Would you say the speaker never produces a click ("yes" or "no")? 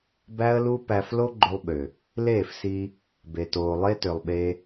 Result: no